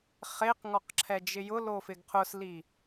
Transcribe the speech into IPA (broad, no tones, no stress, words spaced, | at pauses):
χeqŋɔq ǁʰɛd͡ʒɪjʊlo fɪɡqʰʊsli